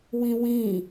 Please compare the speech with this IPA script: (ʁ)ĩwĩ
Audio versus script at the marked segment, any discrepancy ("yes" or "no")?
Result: yes